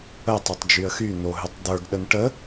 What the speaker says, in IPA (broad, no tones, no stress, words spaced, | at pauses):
ətˤotˤ d͡ʒyə̯xy n̪oɦʏtˤd̪ə˞ɡ ɗənʈə